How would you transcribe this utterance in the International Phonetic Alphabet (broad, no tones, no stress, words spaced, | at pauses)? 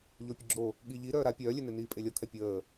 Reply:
ʎopʲəɡ͡ǁo | ɠiʎi ɾœːɾa pʲœːlʲøne niːpʼelʲɔkʰɛ pʲəː